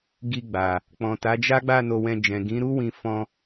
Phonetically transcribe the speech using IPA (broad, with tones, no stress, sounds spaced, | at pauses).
ɡ i˧ ɡ͡b a˨ | k͡p ɔ̃˨ t a˨˦ d͡ʒ a˦ ɡ͡b a˦˨ n o˧ w ɛ̃˧ d͡ʒ ɛ̃˨ ɡ ĩ˨˦ ɾ u˦ w ĩ˧ f ɔ̃˧